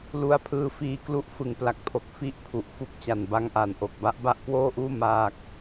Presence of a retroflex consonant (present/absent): absent